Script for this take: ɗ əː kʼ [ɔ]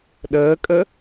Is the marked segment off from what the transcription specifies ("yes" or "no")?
yes